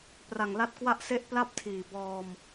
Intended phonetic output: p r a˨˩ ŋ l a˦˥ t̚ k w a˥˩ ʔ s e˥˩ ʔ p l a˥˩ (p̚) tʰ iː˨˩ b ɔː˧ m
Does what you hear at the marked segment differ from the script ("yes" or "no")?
no